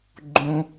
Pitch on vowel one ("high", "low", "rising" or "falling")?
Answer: low